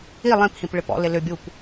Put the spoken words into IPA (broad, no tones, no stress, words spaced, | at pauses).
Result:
i lˠĩphĩp ɭɪpɔ̰lɪ lʏbʲup